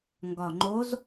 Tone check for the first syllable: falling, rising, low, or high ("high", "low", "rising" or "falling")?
low